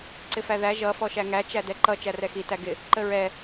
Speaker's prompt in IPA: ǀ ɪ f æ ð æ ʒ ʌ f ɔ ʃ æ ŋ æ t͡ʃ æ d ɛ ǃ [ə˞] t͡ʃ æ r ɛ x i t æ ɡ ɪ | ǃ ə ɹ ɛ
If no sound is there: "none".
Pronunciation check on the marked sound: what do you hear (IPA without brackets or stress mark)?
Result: ʌ